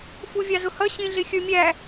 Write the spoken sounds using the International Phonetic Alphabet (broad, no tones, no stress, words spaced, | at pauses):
fuvʲɑzʊhʌ ɕĩɮɪxʲə˞mʲæ